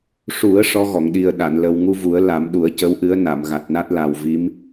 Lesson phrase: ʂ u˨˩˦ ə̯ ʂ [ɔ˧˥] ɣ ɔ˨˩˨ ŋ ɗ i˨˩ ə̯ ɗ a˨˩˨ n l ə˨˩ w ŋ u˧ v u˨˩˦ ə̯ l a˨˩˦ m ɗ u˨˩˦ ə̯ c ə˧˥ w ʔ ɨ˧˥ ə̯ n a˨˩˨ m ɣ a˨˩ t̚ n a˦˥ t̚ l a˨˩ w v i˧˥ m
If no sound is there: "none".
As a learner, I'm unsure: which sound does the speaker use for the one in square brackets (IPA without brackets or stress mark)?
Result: ɔ˧˥